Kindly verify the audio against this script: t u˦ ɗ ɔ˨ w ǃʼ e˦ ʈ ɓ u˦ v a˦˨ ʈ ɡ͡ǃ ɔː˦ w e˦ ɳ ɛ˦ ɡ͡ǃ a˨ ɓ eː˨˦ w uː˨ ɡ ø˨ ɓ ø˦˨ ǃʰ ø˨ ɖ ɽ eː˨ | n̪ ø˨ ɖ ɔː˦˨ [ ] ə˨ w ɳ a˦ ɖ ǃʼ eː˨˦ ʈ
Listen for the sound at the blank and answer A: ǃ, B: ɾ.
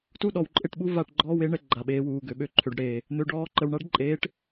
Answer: A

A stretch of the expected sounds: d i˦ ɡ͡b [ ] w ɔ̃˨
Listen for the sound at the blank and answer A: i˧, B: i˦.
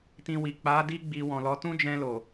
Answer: A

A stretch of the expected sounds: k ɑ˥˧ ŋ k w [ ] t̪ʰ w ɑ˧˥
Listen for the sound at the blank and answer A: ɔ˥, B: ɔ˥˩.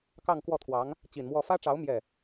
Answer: B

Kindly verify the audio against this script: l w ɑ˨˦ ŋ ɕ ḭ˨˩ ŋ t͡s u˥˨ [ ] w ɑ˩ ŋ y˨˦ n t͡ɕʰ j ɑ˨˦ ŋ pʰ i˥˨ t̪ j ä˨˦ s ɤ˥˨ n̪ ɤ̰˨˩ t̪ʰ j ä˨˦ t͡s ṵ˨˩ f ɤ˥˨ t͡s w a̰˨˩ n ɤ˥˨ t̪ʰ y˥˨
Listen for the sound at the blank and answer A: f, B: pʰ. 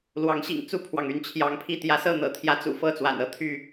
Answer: B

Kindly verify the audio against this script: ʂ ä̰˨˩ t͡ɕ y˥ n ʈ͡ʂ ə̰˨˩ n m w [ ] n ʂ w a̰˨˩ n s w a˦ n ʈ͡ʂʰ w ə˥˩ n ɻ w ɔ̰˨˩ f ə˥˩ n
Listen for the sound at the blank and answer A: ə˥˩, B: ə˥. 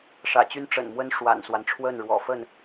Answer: B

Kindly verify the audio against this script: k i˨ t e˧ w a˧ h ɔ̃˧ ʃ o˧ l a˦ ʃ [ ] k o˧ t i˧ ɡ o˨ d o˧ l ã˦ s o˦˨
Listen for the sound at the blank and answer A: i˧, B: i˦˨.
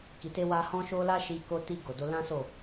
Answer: A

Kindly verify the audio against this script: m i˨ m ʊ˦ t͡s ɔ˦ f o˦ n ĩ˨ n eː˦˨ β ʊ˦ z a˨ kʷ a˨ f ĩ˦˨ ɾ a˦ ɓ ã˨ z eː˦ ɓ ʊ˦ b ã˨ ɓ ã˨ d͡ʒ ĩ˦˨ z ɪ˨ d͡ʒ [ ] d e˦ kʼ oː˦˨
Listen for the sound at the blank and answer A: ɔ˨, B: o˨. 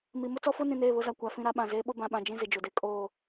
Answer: B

